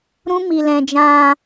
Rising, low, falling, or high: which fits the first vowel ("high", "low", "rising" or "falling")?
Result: high